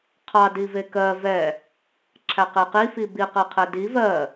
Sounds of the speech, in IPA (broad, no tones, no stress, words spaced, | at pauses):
qʰɑ divekɜ vɛ | ǁʰæqeqi fibi qɜqʰɛdi vɜ